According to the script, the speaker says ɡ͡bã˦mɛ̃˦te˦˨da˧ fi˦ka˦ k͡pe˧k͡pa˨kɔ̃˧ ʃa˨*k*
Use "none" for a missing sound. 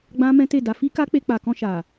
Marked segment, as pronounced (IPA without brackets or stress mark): none